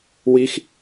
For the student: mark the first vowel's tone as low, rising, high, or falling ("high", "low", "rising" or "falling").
high